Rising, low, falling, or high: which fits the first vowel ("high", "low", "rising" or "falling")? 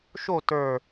falling